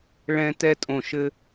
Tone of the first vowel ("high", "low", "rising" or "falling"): high